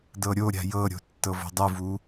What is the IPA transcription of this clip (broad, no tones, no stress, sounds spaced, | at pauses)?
d ɤ ɾʲ o ɾʲ a̤ j ɤ ɾʲ o̤ tː ɤ v o̤ dˤ ɯ v u